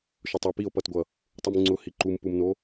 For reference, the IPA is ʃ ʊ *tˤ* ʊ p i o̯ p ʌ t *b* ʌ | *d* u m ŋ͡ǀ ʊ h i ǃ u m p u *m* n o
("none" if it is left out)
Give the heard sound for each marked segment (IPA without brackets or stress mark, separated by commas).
tˤ, ɡʷ, tˤ, m